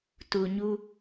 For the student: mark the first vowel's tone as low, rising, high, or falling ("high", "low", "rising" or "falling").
low